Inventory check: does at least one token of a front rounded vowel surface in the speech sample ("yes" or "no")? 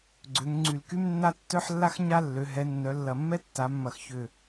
yes